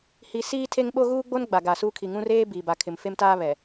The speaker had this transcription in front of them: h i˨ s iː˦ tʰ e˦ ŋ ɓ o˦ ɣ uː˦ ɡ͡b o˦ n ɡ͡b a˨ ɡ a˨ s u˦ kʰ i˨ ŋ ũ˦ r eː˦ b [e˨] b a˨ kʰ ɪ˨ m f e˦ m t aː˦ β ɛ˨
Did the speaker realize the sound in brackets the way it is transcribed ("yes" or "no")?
no